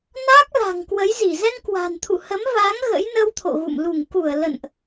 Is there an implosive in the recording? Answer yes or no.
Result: no